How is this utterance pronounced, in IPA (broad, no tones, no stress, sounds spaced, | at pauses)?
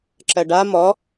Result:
ǁ ɜ ɖ a m ɔ